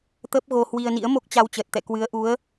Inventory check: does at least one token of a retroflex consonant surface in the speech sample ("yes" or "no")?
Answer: no